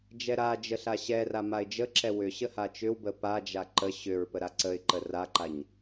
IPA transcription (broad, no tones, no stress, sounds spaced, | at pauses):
d͡ʒ ɛ ɾ a d͡ʒ ə ɬ a ɕ ɛ r a m a ɪ̯ d͡ʒ ə ǁ ɛ w ʏ ɕ ə h a t͡ʃ ʏ w b ə p a d͡ʒ a ǃ ə ɕ ʏ ɹ p ə ɾ a ǀ ə ɪ̯ ǃ ə r a ǃ a ɲ